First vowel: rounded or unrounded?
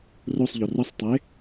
rounded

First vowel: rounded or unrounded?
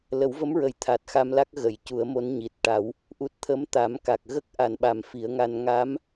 unrounded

